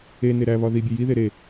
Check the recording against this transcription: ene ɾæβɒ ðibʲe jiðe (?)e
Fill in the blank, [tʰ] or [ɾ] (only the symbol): ɾ